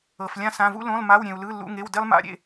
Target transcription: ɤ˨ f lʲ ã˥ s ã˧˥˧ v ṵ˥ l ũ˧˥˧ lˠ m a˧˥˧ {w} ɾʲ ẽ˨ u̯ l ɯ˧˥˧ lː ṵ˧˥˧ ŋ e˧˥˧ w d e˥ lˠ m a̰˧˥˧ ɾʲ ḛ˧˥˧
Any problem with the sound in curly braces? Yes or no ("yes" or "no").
no